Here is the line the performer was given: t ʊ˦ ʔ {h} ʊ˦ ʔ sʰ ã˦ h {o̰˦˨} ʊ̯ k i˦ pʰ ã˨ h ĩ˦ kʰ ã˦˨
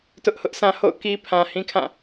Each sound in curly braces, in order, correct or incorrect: correct, correct

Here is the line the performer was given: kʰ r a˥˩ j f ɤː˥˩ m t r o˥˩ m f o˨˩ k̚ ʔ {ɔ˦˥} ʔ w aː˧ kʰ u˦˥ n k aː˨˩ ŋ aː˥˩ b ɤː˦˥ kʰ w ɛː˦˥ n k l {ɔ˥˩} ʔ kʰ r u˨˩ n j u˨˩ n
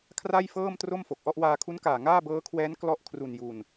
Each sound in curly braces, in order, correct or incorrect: incorrect: ɔ˥˩, correct

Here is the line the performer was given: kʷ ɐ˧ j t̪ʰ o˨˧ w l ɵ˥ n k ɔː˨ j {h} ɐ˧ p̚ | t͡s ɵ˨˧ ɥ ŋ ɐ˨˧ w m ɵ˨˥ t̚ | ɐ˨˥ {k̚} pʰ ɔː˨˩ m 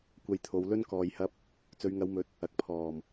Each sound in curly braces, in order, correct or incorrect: correct, correct

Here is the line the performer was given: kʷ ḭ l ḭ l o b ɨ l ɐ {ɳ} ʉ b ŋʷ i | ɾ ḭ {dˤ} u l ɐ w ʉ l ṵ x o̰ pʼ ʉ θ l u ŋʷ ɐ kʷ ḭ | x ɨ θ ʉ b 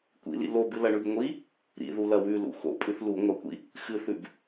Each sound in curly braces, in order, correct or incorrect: correct, incorrect: ð

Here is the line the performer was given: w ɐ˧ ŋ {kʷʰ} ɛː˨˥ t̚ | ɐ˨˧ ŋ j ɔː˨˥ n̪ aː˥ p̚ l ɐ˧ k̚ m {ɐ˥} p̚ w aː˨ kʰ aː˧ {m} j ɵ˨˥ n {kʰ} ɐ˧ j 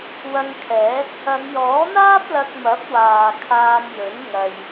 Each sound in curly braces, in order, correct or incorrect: incorrect: kʰ, incorrect: ɐ˨˥, correct, incorrect: ŋ

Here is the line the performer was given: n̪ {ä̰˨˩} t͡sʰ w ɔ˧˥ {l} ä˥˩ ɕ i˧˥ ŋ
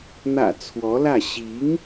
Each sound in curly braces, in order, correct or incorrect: correct, correct

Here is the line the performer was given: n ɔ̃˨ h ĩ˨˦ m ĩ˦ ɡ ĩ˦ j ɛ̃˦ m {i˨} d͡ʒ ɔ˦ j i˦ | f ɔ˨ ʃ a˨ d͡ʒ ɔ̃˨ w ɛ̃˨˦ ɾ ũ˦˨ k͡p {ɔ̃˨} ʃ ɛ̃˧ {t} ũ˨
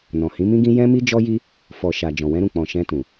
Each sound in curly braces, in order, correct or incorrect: incorrect: i˦, correct, correct

